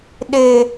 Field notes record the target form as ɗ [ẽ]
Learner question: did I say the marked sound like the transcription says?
no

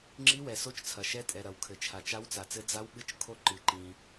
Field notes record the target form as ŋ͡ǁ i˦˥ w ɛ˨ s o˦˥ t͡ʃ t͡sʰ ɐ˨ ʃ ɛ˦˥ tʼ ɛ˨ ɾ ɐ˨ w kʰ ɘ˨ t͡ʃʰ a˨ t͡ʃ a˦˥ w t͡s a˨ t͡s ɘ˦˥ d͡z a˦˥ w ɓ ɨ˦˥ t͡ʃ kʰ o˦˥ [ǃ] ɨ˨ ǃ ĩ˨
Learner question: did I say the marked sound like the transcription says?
yes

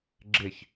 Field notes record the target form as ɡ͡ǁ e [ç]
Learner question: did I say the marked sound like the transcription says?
yes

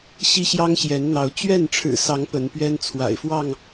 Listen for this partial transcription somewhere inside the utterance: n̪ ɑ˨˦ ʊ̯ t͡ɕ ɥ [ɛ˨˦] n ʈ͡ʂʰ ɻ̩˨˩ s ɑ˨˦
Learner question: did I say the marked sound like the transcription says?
no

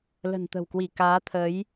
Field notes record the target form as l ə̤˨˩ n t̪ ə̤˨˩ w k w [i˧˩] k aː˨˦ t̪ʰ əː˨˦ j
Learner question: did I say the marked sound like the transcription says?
yes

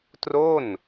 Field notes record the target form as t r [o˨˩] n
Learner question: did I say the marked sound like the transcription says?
no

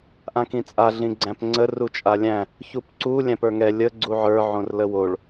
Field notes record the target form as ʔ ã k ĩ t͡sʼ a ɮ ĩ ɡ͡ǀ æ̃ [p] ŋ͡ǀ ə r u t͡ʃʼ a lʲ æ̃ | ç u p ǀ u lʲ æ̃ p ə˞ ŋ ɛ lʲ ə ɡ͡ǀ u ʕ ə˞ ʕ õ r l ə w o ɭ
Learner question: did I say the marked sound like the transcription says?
yes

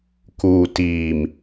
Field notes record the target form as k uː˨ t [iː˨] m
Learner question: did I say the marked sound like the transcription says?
yes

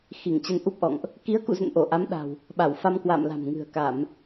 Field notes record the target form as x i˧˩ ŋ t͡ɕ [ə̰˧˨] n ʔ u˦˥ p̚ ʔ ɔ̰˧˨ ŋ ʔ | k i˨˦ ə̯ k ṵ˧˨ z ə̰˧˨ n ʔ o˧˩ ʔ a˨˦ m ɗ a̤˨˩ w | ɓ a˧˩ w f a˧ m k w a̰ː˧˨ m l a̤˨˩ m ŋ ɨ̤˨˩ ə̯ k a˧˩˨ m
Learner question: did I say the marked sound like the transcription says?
no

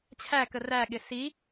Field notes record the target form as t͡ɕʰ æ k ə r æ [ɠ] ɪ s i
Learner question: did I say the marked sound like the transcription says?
yes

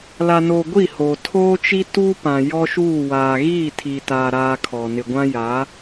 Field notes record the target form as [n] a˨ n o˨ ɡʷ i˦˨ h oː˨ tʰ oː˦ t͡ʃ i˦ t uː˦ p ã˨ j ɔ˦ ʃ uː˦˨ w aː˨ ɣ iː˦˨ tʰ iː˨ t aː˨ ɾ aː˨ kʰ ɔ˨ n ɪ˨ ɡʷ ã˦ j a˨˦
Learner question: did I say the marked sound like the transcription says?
no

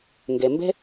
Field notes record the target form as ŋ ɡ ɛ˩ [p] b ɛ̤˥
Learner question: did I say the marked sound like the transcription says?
no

